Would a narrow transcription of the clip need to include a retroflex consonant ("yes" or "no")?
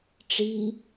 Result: yes